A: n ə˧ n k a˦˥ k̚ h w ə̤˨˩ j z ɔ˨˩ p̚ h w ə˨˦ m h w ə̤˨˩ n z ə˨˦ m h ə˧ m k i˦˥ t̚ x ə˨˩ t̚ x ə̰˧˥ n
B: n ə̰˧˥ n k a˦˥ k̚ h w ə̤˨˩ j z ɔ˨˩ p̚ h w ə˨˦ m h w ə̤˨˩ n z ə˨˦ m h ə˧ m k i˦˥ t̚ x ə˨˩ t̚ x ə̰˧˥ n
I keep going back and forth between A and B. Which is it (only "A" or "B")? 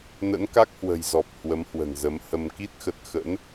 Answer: B